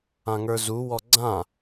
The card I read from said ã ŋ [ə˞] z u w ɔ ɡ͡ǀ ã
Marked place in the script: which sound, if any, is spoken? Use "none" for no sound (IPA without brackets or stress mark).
ə˞